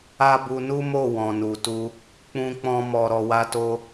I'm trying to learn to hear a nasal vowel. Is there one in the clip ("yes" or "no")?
yes